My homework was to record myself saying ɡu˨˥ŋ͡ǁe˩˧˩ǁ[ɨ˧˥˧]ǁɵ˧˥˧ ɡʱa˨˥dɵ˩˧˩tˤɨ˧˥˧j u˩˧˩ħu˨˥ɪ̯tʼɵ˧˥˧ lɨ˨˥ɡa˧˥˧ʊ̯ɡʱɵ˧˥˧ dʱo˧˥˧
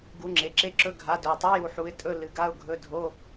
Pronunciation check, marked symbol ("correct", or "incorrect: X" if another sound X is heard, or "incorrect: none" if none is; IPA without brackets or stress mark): incorrect: e˧˥˧